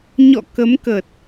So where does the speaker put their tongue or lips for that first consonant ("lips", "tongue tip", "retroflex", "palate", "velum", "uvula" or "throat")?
palate